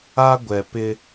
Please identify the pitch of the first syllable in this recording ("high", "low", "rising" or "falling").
high